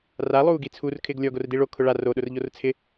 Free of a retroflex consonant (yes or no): no